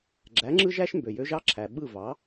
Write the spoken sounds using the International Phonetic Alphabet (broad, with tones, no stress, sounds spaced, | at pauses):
ɡ͡ǁ æ˨˦ ŋ͡ǁ ɯ˦ ʒ æ˦ ʃ m b ø˨ j ø˦ ʒ ɑ˦ ǁʰ æ˨ ɓ ɯ˦˨ v ɑ˨˦